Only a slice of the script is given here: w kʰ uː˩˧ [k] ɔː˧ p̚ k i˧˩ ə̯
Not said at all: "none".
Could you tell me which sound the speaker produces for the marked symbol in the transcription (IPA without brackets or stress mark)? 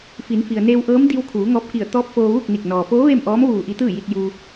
ŋ